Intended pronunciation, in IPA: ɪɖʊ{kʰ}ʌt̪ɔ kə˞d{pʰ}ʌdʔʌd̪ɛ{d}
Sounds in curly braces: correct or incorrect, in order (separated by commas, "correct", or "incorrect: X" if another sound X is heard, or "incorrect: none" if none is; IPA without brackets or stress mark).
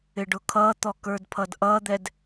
correct, correct, correct